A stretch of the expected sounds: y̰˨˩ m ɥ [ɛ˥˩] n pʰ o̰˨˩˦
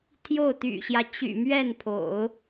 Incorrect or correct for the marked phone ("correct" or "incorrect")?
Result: correct